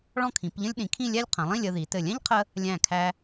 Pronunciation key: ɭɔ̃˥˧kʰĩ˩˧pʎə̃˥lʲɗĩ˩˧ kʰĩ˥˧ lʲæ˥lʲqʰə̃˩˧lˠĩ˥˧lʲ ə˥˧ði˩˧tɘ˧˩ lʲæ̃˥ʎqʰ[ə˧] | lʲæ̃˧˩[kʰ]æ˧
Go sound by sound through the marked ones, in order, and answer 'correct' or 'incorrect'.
correct, correct

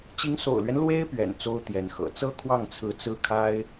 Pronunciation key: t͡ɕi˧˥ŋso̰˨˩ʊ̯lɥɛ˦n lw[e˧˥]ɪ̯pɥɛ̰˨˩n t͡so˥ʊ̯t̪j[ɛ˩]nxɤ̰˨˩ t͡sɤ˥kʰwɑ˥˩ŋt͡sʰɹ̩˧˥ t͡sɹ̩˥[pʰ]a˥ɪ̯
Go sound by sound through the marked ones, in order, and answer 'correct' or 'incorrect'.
incorrect, incorrect, incorrect

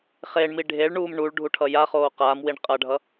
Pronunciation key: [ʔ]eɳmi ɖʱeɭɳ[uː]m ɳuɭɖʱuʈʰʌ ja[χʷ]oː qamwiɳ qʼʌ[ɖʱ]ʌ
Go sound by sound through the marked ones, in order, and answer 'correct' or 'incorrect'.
incorrect, correct, incorrect, correct

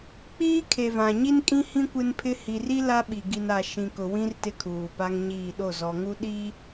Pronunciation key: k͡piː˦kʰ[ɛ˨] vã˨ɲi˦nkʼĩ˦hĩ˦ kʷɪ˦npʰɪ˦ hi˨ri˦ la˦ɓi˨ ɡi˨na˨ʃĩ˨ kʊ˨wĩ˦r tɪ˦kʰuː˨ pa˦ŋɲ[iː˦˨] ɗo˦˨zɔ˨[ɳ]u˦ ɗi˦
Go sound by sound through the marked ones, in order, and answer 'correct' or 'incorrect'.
incorrect, correct, incorrect

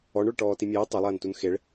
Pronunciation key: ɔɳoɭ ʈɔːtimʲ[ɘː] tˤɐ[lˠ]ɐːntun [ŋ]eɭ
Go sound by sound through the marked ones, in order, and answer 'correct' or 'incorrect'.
correct, correct, incorrect

